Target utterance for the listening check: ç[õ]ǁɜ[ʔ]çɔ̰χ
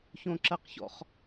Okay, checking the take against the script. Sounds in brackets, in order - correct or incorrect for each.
correct, incorrect

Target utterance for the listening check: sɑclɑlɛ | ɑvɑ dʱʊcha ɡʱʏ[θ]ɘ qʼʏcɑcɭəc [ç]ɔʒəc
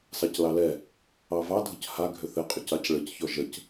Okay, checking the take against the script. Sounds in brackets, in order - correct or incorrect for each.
correct, correct

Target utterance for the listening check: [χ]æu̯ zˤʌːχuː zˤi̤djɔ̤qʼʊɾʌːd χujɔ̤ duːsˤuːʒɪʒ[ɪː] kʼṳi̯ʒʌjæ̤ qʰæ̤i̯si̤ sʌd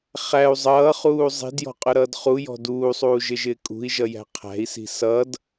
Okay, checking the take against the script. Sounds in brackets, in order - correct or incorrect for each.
correct, correct

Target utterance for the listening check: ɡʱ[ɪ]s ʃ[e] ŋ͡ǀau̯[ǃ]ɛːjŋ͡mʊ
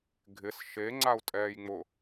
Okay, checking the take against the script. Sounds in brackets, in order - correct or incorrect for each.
correct, correct, incorrect

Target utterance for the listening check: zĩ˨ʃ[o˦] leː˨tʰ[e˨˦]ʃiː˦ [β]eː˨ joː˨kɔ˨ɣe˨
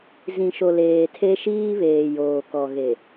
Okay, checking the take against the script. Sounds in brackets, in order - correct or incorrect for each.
incorrect, incorrect, correct

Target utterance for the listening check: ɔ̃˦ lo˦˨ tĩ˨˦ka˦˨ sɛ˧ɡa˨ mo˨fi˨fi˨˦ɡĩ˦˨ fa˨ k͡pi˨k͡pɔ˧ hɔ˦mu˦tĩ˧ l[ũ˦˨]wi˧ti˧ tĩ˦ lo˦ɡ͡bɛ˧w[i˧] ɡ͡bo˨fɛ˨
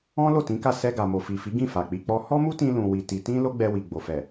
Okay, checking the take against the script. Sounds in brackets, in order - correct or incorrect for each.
incorrect, incorrect

